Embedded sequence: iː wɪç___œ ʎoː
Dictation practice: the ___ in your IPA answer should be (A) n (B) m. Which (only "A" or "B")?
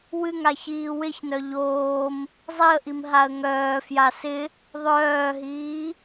A